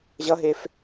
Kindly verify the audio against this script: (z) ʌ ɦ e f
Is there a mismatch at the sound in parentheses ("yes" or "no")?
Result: yes